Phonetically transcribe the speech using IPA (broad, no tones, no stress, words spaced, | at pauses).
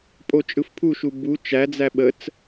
pʼot͡ʃʼɯfpʰuʃu bu t͡ʃæd͡zæ ɓət͡s